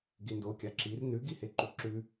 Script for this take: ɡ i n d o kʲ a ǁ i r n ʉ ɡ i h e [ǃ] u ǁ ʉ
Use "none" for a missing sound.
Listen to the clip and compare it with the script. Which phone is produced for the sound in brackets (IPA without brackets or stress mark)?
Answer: ǃ